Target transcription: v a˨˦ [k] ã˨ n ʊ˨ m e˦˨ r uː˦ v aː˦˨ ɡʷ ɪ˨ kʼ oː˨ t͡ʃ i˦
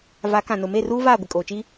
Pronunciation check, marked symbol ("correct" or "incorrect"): correct